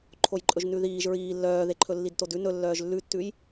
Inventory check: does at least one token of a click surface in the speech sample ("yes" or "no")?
yes